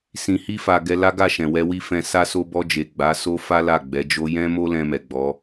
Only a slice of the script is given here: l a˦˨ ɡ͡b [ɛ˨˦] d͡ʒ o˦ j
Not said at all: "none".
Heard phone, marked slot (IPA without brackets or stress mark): ɛ˨˦